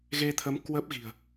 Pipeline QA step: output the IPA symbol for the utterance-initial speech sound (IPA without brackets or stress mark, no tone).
ɣ